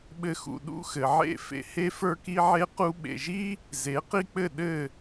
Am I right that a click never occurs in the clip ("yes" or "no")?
yes